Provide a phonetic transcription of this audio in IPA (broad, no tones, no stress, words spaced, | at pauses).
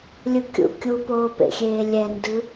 lʲɯkʲṵ kʲupoːpḛxʲeː lʲɛndɯ